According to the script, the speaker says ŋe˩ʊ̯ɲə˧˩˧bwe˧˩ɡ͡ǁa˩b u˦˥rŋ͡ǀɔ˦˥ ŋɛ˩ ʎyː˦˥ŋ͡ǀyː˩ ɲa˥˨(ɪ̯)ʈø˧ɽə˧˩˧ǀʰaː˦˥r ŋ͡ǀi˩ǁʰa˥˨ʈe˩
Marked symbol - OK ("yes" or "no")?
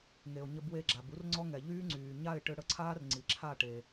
yes